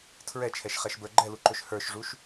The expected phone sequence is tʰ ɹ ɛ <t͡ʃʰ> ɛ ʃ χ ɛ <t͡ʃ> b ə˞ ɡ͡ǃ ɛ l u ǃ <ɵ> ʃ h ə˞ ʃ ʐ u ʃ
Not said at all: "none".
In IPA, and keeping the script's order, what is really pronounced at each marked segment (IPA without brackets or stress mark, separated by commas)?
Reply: t͡ʃʰ, ʃ, ɵ